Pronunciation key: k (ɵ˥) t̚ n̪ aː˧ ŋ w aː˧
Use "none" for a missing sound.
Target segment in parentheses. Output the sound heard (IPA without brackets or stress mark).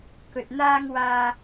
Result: ɵ˨